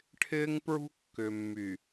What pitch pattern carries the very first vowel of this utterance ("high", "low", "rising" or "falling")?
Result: high